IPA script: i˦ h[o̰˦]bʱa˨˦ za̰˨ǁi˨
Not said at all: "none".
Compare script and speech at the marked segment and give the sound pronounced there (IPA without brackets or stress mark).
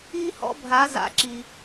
ɔ̰˦